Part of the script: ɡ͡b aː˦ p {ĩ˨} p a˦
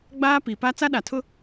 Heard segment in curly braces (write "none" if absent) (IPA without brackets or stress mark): i˨